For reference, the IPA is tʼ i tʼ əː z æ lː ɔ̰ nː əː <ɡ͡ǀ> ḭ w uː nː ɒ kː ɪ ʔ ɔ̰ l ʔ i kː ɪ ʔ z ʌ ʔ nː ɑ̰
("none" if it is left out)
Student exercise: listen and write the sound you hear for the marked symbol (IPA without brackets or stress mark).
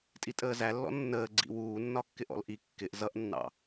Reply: ɡ͡ǀ